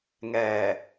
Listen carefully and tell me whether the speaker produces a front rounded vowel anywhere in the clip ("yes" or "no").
no